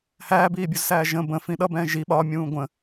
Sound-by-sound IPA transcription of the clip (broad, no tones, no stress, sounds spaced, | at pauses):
h æː b iː bʲ u z s æː ʒ ə̃ b ə̃ f ĩ ɗ ʌ b ɛ̃ː ʒ i ɓ ɒ mʲ ũː ɡʷ ə̃